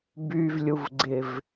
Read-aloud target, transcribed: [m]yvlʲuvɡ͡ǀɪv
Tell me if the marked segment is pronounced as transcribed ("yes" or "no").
no